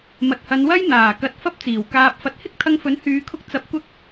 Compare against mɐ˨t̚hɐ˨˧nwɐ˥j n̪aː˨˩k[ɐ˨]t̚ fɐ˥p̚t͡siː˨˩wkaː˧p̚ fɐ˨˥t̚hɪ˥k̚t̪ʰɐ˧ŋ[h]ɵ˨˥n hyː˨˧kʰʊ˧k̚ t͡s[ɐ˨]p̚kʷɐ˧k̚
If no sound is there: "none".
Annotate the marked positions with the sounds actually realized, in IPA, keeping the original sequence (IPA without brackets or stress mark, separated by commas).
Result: ɐ˧, f, ɐ˨˥